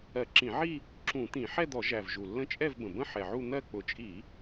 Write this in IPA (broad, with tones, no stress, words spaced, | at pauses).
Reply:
ɜ˧˩˧ǁĩ˧˩˧ʕi˥˧ | ǁũ˧˩˧t̪ĩ˧˩˧ ħɛ˥˧d̪ɔ˧˩˧ʒæ˨˩v ʒu˨˩lːə̃˥˧ t͡ʃʼɛ˥˧vbə̃˨˩bə̃˥˧ ħɛ˨˩ʕu˥˧ n̪ɜ˥˧ k͡pʊ˨˩t͡ʃʼi˧˩˧